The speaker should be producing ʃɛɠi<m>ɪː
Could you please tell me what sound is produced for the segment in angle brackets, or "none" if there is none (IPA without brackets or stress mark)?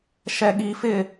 f